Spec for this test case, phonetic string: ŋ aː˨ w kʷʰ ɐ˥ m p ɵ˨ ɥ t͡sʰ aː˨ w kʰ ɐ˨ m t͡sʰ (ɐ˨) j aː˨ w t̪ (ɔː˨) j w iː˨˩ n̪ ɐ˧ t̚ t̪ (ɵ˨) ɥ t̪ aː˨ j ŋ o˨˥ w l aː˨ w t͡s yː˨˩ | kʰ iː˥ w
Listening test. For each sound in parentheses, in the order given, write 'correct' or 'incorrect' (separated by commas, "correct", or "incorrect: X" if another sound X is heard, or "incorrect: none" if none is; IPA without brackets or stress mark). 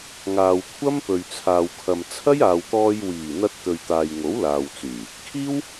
incorrect: ɐ˥, incorrect: ɔː˧, correct